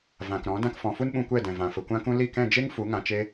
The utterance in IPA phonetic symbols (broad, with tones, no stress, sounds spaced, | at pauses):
v ã˨ k ɾ ɔ̃˨˦ d ã˧ k f ɔ̃˨ f u˦ n ɓ ũ˧ kʷ ɛ˦˨ d ɛ̃˨ v ã˨ f ə˨ kʷ ã˦ k ũ˦ l i˦˨ k ɛ̃˦˨ d͡ʒ e˦ ŋ f u˨˦ ŋ ã˧ t͡ʃ e˦